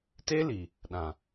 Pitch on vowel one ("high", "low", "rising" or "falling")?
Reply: high